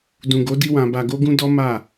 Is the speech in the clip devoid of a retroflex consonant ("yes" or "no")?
yes